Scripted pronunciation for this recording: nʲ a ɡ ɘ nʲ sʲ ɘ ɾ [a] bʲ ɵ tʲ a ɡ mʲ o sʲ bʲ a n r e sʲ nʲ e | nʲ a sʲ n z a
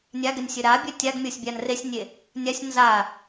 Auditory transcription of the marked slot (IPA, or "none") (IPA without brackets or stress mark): a